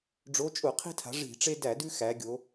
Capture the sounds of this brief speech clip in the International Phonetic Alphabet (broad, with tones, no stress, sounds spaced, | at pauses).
ɖ͡ʐ o˨˥ t͡ʃʼ ʊ˧˩˧ qʰ i̤˦ tʰ a̤˩˧ ʐ i̤˧˩˧ ʈ͡ʂ e˦ d æ˧˩˧ d ʉ˦ x æ˩˧ ɡʲ o˩˧